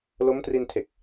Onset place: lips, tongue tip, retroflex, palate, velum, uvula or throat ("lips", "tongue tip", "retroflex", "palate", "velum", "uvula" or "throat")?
tongue tip